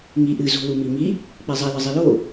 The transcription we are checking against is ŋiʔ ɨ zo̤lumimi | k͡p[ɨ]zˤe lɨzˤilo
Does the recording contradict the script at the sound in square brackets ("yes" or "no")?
yes